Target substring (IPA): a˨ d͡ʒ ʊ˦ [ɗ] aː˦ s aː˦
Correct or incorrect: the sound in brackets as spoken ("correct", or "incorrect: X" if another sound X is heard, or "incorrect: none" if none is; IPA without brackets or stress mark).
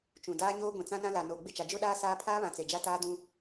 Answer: correct